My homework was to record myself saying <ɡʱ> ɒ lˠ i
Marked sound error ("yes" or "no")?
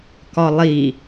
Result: yes